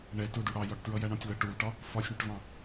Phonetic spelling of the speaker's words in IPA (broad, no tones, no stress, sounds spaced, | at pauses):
ɳ ɛ t ʊ d u ɽ ɑ j ɒ ʈ t ɹ ʌ j æ ɳ ɔ̃ tʲ l ʌ ʈ u l ʈ ɒ | f ɒ sʲ ɳ ɪ ʈ v ɑ̃